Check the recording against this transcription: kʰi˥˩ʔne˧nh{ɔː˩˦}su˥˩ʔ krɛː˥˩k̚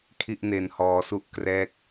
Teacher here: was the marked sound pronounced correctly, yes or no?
no